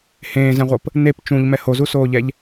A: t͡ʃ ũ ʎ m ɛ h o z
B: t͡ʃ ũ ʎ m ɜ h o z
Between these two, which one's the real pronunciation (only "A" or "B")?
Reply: A